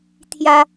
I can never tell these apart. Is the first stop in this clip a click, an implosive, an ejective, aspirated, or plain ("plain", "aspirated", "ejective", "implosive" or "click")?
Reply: aspirated